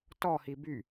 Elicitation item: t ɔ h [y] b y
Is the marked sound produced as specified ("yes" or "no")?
no